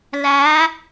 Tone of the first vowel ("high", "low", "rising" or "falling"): rising